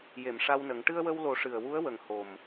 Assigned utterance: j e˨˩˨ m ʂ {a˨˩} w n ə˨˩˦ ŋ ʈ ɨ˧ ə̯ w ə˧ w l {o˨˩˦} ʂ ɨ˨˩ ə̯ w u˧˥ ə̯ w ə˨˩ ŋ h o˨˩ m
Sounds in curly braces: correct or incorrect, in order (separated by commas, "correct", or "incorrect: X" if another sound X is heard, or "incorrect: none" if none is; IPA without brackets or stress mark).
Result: incorrect: a˧, correct